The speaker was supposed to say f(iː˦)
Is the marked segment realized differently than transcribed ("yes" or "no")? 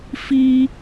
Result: no